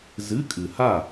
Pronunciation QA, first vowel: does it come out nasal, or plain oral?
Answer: oral